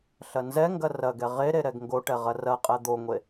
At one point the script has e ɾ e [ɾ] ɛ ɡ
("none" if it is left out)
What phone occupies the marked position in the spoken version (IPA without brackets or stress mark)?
ɾ